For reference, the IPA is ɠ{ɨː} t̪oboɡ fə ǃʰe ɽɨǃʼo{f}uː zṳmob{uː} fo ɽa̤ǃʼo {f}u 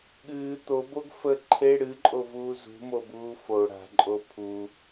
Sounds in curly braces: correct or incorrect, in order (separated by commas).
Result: correct, incorrect, correct, incorrect